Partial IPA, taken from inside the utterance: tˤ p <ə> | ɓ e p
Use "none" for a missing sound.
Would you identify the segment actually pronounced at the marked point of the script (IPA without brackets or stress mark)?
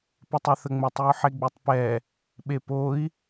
ɛ